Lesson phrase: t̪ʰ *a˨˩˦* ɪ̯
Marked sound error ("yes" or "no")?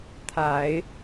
no